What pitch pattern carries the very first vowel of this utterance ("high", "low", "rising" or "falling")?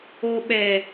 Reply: low